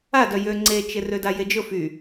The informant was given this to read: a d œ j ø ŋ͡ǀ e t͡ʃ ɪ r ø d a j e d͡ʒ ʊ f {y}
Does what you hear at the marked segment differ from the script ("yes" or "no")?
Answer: no